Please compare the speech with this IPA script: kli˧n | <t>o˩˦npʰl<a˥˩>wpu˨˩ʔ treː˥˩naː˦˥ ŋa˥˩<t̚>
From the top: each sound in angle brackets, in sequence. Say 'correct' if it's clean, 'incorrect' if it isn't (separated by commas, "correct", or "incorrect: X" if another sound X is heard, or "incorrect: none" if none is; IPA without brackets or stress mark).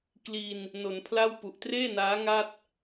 incorrect: n, correct, correct